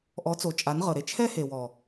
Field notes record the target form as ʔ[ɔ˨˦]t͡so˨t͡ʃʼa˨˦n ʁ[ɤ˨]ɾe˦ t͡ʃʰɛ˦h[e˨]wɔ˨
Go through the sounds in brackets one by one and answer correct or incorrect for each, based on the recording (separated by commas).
correct, correct, correct